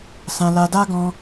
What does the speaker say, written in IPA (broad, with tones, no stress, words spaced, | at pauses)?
sã˧ la˧da˦ɡɔ̃˧